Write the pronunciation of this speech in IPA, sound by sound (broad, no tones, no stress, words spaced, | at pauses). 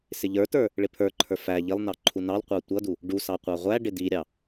sɪʎə˞tə˞ | ɭɪpʰə˞ǃʰə˞ fæ ʎɪlˠnɑ ǃʰunɑlqʷɑ tʷʌdu | ɖusɑ qʷɑʁʷæɖɪ diɾʲɑ